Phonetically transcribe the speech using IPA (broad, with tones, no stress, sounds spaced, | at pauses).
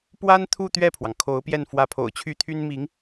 p w a˥ n t̪ʰ u˥˧ t̪ ɥ ɛ˥˩ pʰ w ɑ˩ ŋ kʰ o˧˥ ʊ̯ p j ɛ˥˩ n f w ä˧˥ pʰ o̰˨˩ ʊ̯ t͡ɕʰ y˥ t̪ʰ y˥ n m i˧˥ ŋ